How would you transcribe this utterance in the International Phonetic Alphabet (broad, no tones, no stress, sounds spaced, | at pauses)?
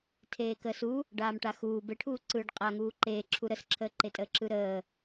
tʰ eː k əː s u | ɖ aː m ʈ a x uː b e ʈʰ uː ǀ ɯː ɖ qʼ a ŋ uː ǃ eː ǁʰ u ɾ ə s ǁʰ əː ǃ e tʼ əː ǁ ɯ ɾ əː